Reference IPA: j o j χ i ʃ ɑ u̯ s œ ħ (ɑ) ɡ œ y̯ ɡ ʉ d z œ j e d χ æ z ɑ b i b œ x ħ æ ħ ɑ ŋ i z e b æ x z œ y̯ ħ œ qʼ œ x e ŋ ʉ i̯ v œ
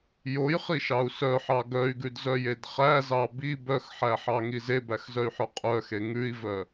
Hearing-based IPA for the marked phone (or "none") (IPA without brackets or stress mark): ɑ